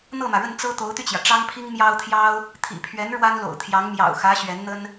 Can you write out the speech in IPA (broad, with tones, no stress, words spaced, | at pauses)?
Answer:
n̪ɤ˥˩mä˩ɻə˥˩n t͡sɤ˥t̪o˧˥ʊ̯t̪y˧t͡ɕjä˩ ʈ͡ʂɑ˥ŋpʰi˥ŋ mjɑ˥ʊ̯t̪ʰjɑ˥ʊ̯ | t̪ʰḭ˨˩pʰɥɛ˧˥n ɻwa˥nlo̰˨˩ʊ̯t̪ʰjɑ˧˥ŋ mjɑ̰˨˩ʊ̯xä˧˥ ɕɥɛ˧˥nn̪ə˥n